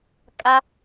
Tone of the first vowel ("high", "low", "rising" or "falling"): high